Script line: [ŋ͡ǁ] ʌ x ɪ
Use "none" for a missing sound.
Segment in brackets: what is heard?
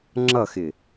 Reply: ŋ͡ǁ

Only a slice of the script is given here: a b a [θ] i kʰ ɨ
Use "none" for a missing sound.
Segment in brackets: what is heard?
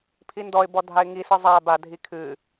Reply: dʱ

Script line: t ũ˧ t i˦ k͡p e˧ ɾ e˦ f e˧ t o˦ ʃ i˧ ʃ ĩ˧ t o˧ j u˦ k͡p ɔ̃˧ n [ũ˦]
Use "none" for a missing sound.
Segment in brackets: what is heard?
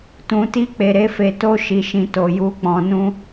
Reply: ũ˦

